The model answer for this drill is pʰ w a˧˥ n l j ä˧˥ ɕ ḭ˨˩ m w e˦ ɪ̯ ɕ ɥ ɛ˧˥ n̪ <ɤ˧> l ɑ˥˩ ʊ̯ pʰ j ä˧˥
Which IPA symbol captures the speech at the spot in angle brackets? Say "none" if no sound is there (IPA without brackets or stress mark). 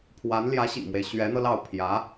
ɤ˧